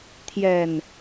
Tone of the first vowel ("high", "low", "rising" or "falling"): low